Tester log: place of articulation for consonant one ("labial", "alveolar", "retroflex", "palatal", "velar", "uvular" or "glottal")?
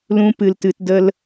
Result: alveolar